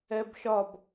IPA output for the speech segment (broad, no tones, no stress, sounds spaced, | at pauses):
ɛ b ʃ ɒ b